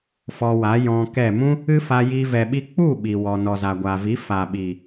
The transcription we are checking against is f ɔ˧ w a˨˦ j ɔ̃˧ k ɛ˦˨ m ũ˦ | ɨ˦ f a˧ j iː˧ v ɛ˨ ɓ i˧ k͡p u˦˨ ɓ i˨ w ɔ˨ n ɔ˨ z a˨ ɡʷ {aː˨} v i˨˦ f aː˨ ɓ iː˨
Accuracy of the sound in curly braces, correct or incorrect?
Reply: correct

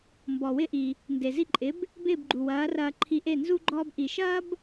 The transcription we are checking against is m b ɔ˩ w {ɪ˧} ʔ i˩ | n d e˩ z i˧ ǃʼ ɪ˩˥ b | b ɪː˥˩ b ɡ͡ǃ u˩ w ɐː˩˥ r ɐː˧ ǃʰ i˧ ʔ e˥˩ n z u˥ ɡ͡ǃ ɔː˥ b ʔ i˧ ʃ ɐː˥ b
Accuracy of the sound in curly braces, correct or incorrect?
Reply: correct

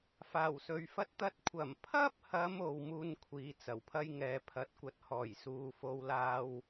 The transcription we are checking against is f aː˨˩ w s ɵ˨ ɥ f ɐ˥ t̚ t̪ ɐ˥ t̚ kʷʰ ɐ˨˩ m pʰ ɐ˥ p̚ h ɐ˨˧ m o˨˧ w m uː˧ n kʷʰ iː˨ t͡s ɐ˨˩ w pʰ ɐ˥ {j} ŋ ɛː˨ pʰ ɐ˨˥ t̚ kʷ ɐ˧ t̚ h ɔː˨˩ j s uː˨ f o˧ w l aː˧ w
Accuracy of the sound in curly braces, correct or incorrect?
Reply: correct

